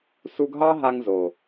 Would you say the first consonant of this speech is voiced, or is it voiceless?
voiceless